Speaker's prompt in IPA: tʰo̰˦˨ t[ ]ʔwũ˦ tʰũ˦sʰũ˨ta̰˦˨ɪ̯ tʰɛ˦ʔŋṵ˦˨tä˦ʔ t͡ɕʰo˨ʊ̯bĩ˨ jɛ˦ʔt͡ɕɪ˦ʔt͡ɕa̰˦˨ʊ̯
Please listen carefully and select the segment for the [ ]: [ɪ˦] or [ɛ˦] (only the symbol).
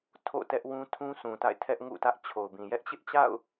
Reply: ɛ˦